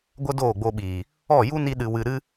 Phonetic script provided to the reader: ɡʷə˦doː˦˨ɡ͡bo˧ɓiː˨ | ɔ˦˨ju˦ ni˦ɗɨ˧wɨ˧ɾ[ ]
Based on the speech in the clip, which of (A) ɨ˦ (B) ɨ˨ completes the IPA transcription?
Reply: A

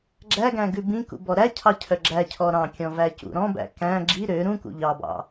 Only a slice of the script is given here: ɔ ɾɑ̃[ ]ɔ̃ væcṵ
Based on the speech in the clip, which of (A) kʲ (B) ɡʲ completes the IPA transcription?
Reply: A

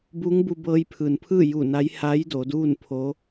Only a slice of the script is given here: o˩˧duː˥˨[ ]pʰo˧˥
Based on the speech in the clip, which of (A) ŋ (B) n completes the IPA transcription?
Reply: B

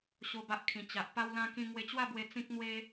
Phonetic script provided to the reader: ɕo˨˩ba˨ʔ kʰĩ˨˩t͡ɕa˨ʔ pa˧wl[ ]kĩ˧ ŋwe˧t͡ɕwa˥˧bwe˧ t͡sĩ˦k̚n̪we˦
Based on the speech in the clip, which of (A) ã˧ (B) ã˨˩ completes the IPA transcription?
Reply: A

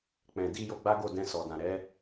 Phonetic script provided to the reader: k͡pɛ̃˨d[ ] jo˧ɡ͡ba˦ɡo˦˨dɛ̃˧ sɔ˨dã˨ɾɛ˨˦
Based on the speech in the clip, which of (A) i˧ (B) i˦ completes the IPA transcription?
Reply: A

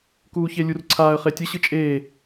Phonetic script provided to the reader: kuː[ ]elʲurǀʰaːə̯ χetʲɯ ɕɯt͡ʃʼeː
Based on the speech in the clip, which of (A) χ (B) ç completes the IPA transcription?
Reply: B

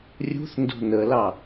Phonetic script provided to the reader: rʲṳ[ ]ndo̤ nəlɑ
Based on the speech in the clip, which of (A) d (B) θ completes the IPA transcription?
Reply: B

